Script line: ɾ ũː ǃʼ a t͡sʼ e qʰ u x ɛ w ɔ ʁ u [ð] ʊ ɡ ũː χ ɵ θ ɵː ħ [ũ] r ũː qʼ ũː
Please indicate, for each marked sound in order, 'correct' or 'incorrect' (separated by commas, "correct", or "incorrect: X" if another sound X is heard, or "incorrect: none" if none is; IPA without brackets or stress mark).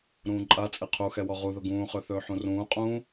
correct, correct